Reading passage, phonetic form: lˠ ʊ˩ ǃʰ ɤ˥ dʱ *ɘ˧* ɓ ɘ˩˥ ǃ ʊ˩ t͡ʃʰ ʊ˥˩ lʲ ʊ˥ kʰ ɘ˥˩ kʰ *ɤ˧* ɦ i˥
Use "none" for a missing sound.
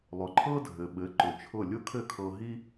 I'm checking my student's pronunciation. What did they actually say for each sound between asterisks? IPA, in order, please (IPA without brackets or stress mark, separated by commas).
ɘ˩, ɤ˧